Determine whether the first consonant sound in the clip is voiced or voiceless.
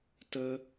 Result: voiceless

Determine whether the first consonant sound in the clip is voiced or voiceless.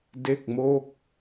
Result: voiced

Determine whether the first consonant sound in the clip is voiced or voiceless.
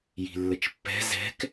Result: voiced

